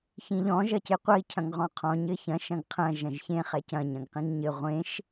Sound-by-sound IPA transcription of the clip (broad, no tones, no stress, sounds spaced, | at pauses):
ç ĩ ʎ ɔ̃ ʒ ɐ c e qʷ ɐ i̯ cʰ ɐ̃ ŋ ʁ ɔ̃ qʰ ɔ̃ ɲ ɘ ç ɐ̃ ʃ ɐ̃ ɡ qʰ ɐ̃ ʒ ɐ̃ ʒ ç ẽ χ ɛ c ɐ̃ ɲ ɐ̃ ɡ q ĩ ŋ ɲ ɘ ʁʷ ẽ ʃ